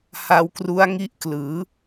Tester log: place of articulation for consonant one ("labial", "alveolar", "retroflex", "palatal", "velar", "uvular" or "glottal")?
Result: glottal